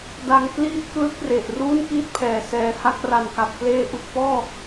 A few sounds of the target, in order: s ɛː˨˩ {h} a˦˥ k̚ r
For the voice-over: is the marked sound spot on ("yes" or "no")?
yes